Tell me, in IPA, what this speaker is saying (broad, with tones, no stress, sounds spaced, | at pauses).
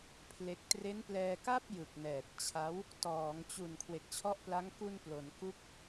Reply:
pʰ l e˦˥ k̚ t r e˦˥ n p l ɛː˧ k a˥˩ p̚ j ɯ˨˩ k̚ n ɛː˨˩ t̚ t͡ɕʰ a˦˥ w | t ɔː˩˦ ŋ t͡ɕ u˨˩ n kʰ w e˨˩ k̚ t͡ɕʰ ɔ˦˥ ʔ p l a˦˥ ŋ k u˧ n p l o˩˦ n k u˥˩ k̚